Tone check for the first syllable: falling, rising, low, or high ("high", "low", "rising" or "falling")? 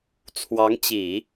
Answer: rising